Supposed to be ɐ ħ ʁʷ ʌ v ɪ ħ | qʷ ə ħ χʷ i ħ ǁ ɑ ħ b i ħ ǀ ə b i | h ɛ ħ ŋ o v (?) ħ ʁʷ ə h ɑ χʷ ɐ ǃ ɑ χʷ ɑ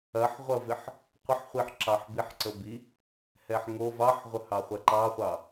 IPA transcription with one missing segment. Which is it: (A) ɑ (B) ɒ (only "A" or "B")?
A